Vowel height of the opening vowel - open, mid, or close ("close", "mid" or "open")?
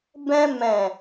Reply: mid